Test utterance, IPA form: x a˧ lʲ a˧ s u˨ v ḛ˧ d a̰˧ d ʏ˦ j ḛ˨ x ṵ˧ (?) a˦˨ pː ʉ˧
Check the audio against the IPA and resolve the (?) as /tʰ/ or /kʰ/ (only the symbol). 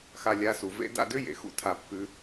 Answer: tʰ